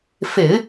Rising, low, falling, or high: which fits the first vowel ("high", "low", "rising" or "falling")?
low